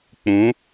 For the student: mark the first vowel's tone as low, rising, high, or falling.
rising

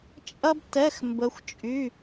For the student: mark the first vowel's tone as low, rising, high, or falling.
high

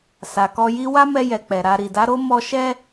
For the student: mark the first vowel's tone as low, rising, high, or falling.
low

